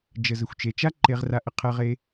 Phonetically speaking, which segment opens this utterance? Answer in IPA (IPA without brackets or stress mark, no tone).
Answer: d͡ʒ